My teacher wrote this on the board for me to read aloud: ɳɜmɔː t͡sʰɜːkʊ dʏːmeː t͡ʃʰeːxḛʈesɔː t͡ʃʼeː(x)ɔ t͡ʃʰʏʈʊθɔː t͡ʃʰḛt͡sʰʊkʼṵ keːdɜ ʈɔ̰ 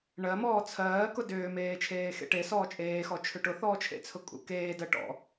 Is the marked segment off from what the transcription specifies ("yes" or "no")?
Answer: no